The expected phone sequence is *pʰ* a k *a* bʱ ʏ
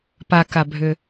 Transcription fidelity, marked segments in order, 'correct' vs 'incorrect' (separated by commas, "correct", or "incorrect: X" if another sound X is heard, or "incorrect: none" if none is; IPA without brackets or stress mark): incorrect: p, correct